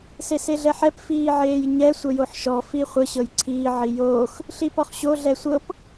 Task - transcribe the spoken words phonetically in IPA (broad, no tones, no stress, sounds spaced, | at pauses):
s e s e ɮ ɛ ħ ɛ p f iː ʕ eː j ɲ ɛ sʷ ə j o ħ ʃ ɔ f i χʷ ə ɕ ɤ j ǀʰ iː ʕ i j oː x | ɬ i p ɔ χ ɕ o ɮ ɛ sʷ ɤ p